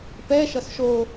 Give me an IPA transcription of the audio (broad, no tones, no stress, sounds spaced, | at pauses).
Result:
p ɛ ʃ ʌ s ʃ o